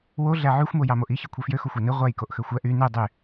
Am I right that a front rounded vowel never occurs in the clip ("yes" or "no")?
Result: no